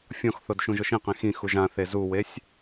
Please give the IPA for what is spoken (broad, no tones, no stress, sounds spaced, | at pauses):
fʲ ɔ̃ x θ o d ʃ ũ ʒ ʊ ʃ ĩ q ẽ x ĩ x u ʒ ã θ e z u w e sʲ